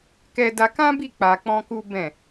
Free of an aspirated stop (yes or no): yes